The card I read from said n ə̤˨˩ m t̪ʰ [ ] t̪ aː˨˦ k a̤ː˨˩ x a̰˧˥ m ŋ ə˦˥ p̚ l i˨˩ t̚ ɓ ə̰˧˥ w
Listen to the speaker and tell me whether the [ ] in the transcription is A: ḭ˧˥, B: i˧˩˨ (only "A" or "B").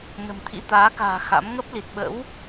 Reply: A